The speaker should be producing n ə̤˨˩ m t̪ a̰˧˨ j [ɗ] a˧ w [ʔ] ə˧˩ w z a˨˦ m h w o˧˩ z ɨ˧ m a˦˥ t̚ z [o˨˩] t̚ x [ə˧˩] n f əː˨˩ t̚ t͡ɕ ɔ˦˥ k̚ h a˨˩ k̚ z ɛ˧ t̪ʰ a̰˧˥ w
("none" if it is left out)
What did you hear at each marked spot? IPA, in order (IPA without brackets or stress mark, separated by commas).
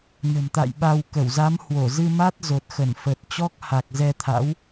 ɓ, k, o˨˩, ə˧˩